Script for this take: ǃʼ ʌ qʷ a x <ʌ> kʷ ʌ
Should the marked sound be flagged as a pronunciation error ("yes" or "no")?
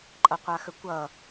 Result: yes